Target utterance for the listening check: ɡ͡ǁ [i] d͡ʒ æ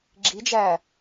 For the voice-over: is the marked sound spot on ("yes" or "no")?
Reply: yes